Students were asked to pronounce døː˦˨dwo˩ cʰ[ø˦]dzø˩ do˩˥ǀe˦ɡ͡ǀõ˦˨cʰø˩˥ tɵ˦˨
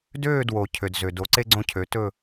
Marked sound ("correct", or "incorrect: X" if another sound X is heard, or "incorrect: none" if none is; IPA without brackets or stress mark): incorrect: ø˩